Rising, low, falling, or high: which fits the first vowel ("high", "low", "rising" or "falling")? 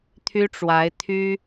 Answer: high